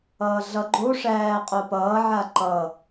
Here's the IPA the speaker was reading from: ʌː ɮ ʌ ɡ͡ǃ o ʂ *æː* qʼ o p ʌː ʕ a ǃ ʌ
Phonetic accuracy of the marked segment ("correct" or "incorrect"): correct